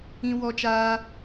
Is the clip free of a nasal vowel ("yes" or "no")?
no